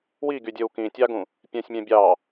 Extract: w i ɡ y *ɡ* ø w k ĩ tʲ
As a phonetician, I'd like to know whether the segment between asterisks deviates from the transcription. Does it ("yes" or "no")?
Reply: yes